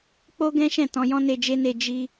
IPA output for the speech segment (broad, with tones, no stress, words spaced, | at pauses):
k͡po˦ɡɛ̃˦ʃɛ̃˦˨ tɔ̃˧jɔ̃˦ne˧ d͡ʒe˦ne˧ d͡ʒi˧